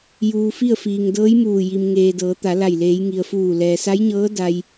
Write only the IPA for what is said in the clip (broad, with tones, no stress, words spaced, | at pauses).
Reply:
juː˧fi˥˨ə̯ fiː˩ŋdɤː˧˥jmuː˧˩ ji˩mŋeː˩ dɤː˩˧t̪a˩˧la˧˩j leː˩˧jŋi˩ə̯fuː˧˩ lɛː˩sa˧˥jɲɤː˧˥ da˧j